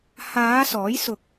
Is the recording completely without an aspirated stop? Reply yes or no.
yes